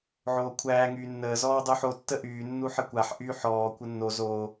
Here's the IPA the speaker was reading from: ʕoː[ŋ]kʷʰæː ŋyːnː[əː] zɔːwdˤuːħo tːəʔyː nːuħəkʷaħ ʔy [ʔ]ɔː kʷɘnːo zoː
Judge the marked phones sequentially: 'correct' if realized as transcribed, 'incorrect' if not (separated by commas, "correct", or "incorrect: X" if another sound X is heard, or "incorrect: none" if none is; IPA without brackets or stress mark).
incorrect: none, correct, incorrect: ħ